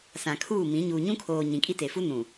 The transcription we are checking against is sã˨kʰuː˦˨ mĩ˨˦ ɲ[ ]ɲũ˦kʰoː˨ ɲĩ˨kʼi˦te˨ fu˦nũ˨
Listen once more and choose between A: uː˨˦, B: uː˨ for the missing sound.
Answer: B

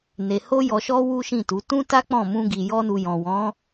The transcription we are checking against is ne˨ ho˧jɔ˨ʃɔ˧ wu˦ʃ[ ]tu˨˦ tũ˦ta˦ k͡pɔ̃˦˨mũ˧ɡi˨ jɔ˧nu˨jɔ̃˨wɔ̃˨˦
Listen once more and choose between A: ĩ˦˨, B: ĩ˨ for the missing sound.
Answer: A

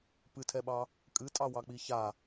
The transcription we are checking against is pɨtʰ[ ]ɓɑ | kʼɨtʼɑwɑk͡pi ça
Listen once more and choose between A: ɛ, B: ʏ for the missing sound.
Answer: A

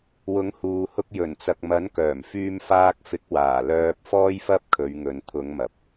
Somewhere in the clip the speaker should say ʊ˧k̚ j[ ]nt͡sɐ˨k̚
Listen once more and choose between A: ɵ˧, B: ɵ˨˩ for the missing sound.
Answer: B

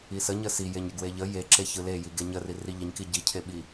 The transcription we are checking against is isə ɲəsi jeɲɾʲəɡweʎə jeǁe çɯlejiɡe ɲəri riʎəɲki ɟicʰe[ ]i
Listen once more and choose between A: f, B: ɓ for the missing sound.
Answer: B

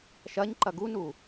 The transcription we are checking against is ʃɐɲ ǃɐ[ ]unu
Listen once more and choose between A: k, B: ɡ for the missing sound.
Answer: B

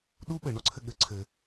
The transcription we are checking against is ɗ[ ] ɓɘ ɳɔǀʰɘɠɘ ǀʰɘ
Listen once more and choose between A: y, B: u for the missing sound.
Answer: B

